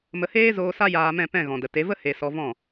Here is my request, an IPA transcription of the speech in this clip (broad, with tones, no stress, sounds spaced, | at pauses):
m ə˧ h eː˦ z oː˧ s a˦ j aː˧ m ɛ̃˦˨ p ɛ̃˦˨ ɣ ɔ̃˨ d ə˨ t e˨˦ v ə˦ h e˧ s ɔ˧ v ɔ̃˦˨